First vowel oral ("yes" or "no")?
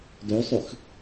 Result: yes